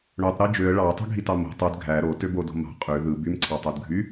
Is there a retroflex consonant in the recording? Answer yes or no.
yes